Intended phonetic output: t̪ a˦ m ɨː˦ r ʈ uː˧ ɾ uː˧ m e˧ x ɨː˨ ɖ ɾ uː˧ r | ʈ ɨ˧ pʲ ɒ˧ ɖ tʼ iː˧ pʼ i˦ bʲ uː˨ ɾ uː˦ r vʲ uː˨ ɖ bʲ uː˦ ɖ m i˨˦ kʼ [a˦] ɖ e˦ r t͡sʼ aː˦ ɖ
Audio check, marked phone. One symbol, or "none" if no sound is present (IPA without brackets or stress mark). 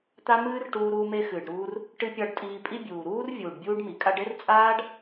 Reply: a˦